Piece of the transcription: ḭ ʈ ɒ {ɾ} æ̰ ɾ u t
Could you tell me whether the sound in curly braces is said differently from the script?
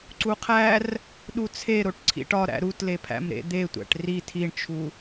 no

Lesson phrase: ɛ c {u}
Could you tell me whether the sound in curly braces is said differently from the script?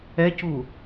no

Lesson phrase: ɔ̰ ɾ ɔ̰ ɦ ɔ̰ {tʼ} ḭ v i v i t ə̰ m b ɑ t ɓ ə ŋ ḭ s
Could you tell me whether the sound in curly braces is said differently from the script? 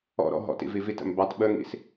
yes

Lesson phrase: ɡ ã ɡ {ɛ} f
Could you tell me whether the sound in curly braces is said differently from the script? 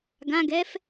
no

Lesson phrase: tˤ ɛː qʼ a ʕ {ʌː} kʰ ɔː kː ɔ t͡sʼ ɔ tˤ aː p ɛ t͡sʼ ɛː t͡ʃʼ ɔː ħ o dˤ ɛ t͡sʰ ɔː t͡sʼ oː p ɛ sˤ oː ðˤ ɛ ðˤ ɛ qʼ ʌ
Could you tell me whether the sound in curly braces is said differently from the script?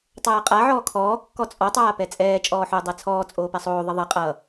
yes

